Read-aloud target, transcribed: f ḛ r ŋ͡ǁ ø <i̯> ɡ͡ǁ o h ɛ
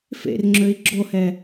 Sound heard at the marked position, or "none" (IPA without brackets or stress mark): i̯